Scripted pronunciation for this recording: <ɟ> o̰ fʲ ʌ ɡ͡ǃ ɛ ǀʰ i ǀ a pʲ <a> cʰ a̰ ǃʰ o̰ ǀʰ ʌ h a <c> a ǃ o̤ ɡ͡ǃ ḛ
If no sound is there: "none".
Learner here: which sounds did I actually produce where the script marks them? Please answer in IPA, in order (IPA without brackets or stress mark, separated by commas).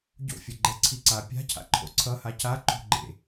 ɟ, a̤, c